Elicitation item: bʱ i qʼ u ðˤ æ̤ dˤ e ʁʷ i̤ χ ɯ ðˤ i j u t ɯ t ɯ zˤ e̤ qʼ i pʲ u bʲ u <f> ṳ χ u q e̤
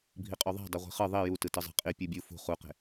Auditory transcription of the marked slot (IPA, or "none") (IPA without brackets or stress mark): f